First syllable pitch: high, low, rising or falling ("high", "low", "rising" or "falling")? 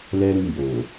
high